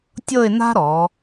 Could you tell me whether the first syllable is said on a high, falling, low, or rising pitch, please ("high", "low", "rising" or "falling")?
falling